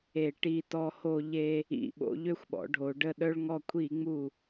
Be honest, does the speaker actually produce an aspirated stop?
yes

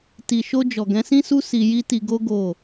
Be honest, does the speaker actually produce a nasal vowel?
yes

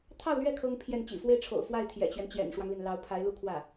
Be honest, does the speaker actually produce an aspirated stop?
yes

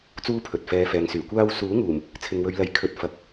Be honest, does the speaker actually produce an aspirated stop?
yes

